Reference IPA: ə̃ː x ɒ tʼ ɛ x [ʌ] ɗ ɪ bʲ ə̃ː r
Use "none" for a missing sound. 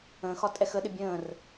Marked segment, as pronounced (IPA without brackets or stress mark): ə